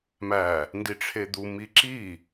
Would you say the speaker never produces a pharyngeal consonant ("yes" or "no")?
yes